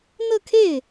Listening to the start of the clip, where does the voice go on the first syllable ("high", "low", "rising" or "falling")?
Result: falling